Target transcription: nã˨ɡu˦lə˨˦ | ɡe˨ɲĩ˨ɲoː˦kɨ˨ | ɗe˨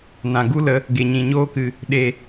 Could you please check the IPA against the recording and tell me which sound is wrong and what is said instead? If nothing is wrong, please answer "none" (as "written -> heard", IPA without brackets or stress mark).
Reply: none